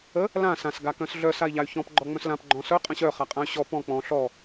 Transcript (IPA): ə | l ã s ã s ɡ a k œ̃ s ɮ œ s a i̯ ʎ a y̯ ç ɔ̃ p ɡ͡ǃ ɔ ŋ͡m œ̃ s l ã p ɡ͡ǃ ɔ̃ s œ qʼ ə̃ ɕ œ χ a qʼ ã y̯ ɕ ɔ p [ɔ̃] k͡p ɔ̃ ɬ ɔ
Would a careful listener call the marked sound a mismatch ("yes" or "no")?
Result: no